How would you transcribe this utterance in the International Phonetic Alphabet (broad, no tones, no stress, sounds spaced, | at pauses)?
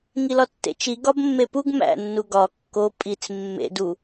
ŋ i l ɒ tː ḛ t͡ʃ i ɡ ɒ b mː e p u ɡ m æ̰ nː u ɡ ɒ kː o pʼ i t͡s mː ḛ d u